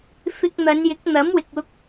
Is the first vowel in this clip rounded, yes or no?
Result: no